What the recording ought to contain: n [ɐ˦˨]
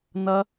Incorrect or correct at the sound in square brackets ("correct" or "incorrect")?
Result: incorrect